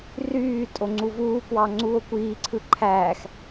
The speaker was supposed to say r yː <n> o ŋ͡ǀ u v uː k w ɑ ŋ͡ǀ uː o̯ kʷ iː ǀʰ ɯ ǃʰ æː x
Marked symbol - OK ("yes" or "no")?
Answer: no